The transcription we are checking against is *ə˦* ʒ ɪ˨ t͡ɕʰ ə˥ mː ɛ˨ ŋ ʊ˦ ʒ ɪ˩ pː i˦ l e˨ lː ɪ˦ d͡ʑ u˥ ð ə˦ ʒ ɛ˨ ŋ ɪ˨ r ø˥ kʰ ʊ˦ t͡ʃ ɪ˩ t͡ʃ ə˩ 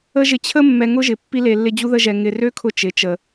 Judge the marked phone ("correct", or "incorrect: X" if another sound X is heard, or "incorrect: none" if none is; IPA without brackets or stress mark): correct